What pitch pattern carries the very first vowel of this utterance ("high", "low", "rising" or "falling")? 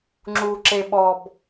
low